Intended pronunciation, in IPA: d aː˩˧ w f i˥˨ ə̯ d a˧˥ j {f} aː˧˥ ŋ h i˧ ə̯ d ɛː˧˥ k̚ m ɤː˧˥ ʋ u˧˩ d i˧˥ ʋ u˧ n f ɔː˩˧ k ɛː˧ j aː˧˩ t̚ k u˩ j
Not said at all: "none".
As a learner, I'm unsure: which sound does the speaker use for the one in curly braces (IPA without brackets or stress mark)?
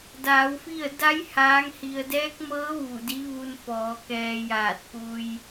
h